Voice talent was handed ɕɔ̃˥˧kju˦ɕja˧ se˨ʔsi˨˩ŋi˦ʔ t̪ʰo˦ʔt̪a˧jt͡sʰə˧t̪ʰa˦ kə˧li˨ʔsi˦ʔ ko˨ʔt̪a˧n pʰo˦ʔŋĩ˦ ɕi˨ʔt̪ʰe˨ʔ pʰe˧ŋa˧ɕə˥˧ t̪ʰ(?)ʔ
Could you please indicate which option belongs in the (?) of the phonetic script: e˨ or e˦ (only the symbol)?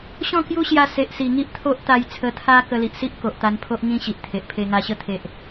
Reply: e˨